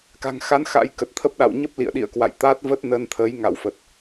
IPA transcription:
ka̤˨˩ŋxa˨˦n xa̰˧˥jkə˨˩t̚t̪ʰə˦˥p̚ ɗa̰˧˨w ɲə˦˥p̚lḭ˧˨ə̯ɗḭ˧˨ə̯kwa̰˧˨j t̪a˦˥t̚və˦˥t̚ nə˧nt̪ʰə˨˦j ŋa̰˧˨wfə˨˩t̚

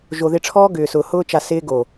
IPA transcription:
ʒo˨ðɪ˧ʈ͡ʂʰɔː˦ ɡʏː˨sʊː˨ hʊː˧t͡ʃa˨ sɪː˧ɡo˨

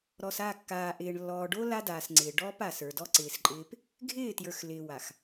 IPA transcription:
ɾɔ˨sa˦˨ kːaː˨ ʔɪː˨ɳ lːɔː˨ɖo˦ la˦daː˨sŋ͡ǀɪː˨ ɖɔː˦pa˨sə˞˨dɔ˦ ǀɪː˨sǃʼɪː˦p | ɡʱɪː˦˨tjə˞˨x lɪː˨wa˨x

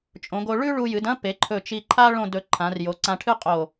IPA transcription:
t͡ʃʼõ˩˧ɡo˧ ɭʉ˥ɭu˧jɨ˩˧dɐ̃˥ pe˩˧ǃʰɵ˧˩t͡ʃi˧ǃʰa˥ ɭõ˥˧dɵ˧ ǃʰã˩˧rjo˩˧ǀã˧ ʈʰɨ˥ qʼo˧˩

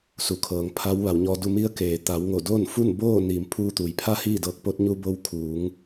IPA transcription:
su˩kʰɤː˩ŋ pʰa˧˥wʋa˩˧wɲɔː˧du˥˨ mi˧˥ə̯keː˩t̪a˩˧wŋo˧˩ do˥˨nfu˥˨nboː˥˨ niː˩m pʰuː˧t̪uː˩j pʰa˧˥ hiː˥˨dɤː˧˥k̚ po˧˥t̚ ɲu˧bo˧w kʰuː˩˧ŋ

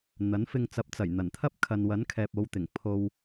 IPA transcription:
n̪ɐ˨˥n fɪ˧ŋt͡sɐ˨˥p̚t͡sɐ˨˩jn̪ɐ˨˩n t̪ʰɐ˥p̚ kʰɐ˨nwɐ˨˥nkʰɛː˨p̚ o˨˧wt̪ɪ˨˩ŋ pʰo˨w

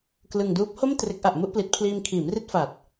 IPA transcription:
klɯ˧ŋduː˦˥p̚ ho˥˩m tre˦˥k̚ʔa˨˩ʔmu˥˩ʔ pli˨˩t̚pʰliː˧mkʰiː˩˦m ri˥˩t̚fa˨˩t̚

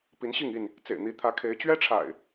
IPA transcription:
pi˨˦nɕi˥˨ŋi˥˨n | t͡sḛ˨˩ɪ̯n̪i˨˦ t̪ʰä˨˦kʰe˨˦ɪ̯ t͡ɕɥɛ˦ʈ͡ʂʰa̰˨˩ɪ̯

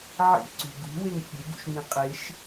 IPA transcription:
ʕḭǀṳ ɡṳweŋ fʲeɡṵʃŋĩ qʼeʃ

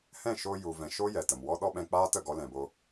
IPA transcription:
hɛ̃˦˨ʃo˧ ju˨vɛ̃˨ʃo˦ jɛ˨tə˨mwɔ˦ ɗɔ˦ɓɛ̃˧k͡paː˦tə˦˨ ɡɔ˧lɛ̃˨boː˧

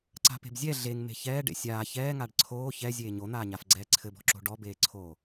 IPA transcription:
ǀa̤pe̤bzʲɛ ɮeŋ me̤çɛːɖḛ sʲaː çɛːŋaɖ ǀʰoː çɛ zʲeːɲon̪aːɲaf ɡ͡ǀɛːǀʰɘbɔ̤ǁo̤ ɖɔbeːǀʰoː

